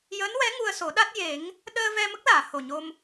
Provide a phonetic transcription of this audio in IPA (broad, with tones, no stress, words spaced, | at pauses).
jəː˧˥nwɛ˧˥ ŋu˧ə̯so˨˩˦ɗa˦˥t̚ je˨˩˦ŋ | ɗəː˧vɛ˧ mə˦˥k̚laː˨˩˨ ho˨˩ɲo˧m